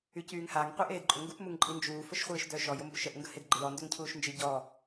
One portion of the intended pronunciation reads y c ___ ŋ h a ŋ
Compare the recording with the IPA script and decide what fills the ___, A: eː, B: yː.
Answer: B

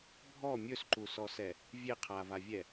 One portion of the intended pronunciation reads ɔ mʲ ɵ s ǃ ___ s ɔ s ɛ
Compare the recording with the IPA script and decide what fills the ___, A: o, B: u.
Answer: B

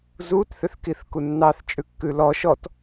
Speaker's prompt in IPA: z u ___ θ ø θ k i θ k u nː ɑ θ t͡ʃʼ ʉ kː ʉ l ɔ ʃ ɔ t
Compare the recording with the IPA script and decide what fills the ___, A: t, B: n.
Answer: A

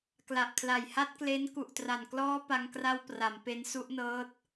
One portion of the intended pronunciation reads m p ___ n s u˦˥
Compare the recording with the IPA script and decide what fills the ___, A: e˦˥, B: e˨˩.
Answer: A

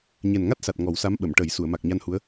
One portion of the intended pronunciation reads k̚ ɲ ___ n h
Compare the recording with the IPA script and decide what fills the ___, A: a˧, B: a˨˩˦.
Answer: A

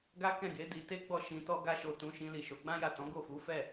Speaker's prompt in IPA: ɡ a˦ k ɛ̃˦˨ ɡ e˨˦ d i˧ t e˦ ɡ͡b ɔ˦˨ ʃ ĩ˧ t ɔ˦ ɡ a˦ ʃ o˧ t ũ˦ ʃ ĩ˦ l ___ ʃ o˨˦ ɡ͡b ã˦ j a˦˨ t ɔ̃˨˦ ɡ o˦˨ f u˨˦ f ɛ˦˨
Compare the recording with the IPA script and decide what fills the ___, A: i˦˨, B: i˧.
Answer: A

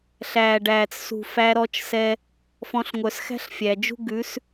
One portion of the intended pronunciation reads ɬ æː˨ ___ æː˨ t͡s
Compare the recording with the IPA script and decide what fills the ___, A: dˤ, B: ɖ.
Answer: B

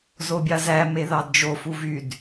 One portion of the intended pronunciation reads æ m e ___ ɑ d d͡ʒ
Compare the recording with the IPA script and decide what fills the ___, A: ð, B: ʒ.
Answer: A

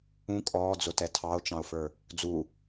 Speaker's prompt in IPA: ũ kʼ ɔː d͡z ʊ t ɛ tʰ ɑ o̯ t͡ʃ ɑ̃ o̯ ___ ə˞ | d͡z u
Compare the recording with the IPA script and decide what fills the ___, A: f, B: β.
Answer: A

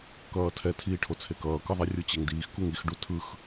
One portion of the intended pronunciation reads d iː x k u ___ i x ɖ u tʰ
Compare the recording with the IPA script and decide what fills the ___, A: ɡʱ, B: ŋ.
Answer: B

